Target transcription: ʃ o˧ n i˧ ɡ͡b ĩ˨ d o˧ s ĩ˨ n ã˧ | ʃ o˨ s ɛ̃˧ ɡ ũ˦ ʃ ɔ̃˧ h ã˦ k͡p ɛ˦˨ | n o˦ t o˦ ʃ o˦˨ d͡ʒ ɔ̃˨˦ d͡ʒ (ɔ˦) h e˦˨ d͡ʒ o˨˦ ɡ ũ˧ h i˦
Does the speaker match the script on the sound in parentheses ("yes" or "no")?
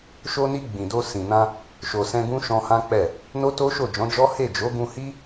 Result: yes